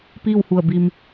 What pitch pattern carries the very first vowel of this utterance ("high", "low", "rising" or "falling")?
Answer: falling